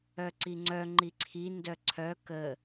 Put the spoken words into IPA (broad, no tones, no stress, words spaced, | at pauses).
œǀiŋ͡ǀœ ŋ͡ǃiǀʰi ndœǀʰœ kə